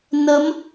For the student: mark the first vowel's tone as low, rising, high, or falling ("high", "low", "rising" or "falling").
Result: rising